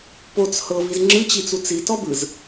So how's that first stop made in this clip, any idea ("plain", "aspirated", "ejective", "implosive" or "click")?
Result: plain